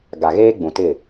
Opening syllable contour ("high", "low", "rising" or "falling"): low